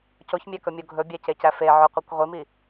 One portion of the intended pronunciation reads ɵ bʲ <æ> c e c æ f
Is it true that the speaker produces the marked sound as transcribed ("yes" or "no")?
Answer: yes